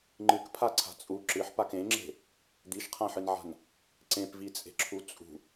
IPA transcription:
ŋ͡ǃ ɨ k pʰ a ǀʰ a̤ t͡sʼ u ǁ ɨ ħ p a k ẽ ŋ͡ǁ e̤ | d̪ i ʃ qʰ ã ħ ɨ n ʕ a̤ n | ǀ ẽ p v i t͡sʼ e̤ ǁʰ u t͡sʼ ṳ

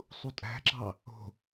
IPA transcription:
sˤ u tʼ æ̤ ɡ͡ǁ ɑ | o̤

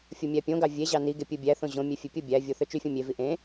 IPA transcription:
fʲ o mʲ æ pʲ õ ɡ ɑ vʲ e ʑ ɑ n i ɡ e pʲ ɯ bʲ æ θ õ ʑ õ mʲ e fʲ ø pʲ o bʲ æ vʲ o θ ø t͡ʃ y fʲ õ mʲ e v i ʔ ẽ

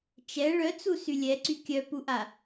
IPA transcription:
t͡ʃ ɛ ɭ œ t͡s u s y lʲ ɛ ǀ y kʲ œ p u ʔ a

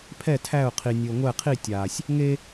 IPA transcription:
pʰ ɛ tʰ æ ʊ̯ qʰ i nʲ ə ʊ̯ ŋʷ ɛ qʰ i tʲ a sʲ | ŋ e

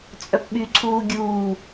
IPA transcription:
t͡sʼ œ p ɓ y ǀʰ uː ɡʲ uː

